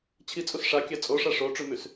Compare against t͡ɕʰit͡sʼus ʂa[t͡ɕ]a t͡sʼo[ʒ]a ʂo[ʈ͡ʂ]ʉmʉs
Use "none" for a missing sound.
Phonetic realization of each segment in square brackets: kʲ, ʂ, ʈ͡ʂ

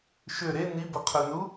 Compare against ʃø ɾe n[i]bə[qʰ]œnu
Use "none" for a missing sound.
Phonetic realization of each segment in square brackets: i, qʰ

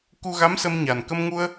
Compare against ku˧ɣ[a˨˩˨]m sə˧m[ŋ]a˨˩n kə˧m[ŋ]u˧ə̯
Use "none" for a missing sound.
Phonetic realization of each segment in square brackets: a˧˥, ɲ, ŋ

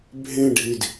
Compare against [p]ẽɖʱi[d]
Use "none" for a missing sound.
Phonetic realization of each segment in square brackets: bʱ, d

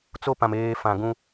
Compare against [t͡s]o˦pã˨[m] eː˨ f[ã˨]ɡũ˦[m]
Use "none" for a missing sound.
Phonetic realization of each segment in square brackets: t͡s, m, ã˨, none

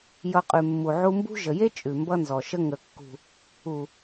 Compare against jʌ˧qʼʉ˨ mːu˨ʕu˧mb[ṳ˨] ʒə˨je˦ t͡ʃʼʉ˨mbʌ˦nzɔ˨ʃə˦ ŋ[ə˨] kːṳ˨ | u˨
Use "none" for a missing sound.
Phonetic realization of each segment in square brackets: ṳ˦, ə˨

